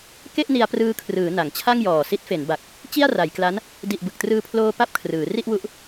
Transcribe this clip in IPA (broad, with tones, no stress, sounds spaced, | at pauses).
k e˥˩ ʔ n i˧ a̯ p r ɯː˧ kʰ r ɯː˩˦ n a˩˦ ŋ t͡ɕʰ a˥˩ ŋ j ɔː˨˩ s i˦˥ t̚ f e˩˦ n b a˨˩ k̚ | t͡ɕ i˥˩ a̯ r a˩˦ j k l a˦˥ n | d i˨˩ ʔ b ɯ˨˩ k̚ t r ɯː˧ pʰ l oː˧ p a˥˩ p̚ kʰ r ɯː˩˦ r i˥˩ ʔ w u˦˥ ʔ